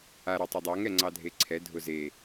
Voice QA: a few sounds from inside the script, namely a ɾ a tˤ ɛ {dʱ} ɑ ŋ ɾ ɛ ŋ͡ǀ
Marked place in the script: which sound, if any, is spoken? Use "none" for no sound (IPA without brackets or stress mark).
dˤ